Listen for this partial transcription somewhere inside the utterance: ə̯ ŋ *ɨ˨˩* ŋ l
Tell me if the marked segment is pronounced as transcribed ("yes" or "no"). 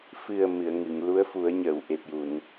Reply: no